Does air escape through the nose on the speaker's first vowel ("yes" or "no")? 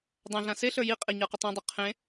yes